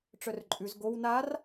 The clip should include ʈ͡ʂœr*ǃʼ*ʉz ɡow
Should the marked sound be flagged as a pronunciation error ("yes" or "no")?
no